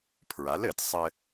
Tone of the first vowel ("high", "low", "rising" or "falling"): rising